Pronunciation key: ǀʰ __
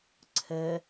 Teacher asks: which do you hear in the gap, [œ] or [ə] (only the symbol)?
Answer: ə